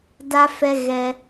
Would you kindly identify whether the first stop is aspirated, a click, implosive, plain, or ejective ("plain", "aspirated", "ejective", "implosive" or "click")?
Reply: plain